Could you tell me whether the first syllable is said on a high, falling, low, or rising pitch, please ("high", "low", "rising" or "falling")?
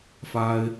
high